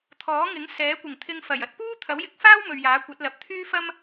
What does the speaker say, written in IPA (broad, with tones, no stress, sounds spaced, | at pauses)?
t̪ʰ ɔː˨˥ ŋ ɪ˨˥ ŋ s ɛː˨˥ kʷ ɪ˨˩ ŋ t̪ʰ ɪ˧ ŋ f ɐ˨˩ j ɐ˨˥ t̚ p uː˥ t̪ʰ ɐ˨˥ w j ɪ˨˥ k̚ f aː˥ w m ɵ˨ ɥ j aː˨˥ kʷ ɐ˨˥ t̚ l ɐ˨ p̚ t̪ʰ yː˥ f ɐ˥ m